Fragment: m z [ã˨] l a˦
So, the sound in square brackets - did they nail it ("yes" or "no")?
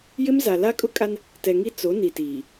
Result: no